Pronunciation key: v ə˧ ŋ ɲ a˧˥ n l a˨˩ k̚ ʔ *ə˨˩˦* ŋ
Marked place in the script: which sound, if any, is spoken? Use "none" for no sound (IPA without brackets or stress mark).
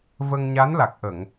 ə˨˩˨